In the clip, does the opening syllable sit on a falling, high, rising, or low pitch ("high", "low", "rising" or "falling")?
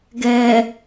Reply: low